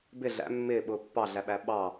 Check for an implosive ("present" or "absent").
present